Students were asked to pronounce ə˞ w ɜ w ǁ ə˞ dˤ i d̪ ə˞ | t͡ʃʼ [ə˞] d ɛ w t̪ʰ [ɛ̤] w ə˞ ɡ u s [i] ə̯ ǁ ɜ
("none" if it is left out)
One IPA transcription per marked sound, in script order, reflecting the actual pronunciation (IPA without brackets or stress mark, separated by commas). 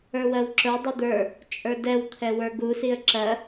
ə˞, ɛ, i